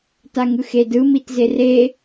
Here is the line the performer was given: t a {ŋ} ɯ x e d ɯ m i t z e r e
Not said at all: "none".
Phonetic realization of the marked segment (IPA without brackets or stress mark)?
ŋ